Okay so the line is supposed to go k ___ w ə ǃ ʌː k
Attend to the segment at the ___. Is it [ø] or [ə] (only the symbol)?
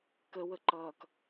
ə